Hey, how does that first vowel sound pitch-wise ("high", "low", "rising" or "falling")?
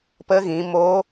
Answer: rising